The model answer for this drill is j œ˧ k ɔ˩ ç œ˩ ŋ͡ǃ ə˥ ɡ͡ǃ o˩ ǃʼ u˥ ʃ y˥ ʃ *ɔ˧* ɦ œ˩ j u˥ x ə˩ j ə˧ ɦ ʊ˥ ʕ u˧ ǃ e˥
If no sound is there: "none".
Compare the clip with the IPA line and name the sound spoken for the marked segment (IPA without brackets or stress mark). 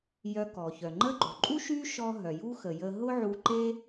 ɔ˧